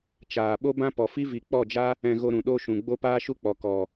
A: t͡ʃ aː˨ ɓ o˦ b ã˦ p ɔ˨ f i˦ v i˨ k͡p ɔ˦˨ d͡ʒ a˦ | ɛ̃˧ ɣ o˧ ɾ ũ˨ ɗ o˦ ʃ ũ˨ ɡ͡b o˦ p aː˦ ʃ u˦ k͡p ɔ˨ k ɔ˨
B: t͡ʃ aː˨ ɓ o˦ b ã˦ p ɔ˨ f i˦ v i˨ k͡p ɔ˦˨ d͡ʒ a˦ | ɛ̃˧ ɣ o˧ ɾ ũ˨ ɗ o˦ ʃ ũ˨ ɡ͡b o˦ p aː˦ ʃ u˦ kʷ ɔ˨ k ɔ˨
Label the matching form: A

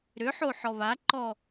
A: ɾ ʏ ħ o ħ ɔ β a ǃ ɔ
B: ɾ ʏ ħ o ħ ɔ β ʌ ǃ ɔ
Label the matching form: A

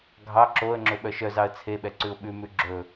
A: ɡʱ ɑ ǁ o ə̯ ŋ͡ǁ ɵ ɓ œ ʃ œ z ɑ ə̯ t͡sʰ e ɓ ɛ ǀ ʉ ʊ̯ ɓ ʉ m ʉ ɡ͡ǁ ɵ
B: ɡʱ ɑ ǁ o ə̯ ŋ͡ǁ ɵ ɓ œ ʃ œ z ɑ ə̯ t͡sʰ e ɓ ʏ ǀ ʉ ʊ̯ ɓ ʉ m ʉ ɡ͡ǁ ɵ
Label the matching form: A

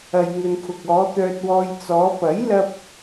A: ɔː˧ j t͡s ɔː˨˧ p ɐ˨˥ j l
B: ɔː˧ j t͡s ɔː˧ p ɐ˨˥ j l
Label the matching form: A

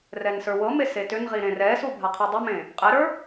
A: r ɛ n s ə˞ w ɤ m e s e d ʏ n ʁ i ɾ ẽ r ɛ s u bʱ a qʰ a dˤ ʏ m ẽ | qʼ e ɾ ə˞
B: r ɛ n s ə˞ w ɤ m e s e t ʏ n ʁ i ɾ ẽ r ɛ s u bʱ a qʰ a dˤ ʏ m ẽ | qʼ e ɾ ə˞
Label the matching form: B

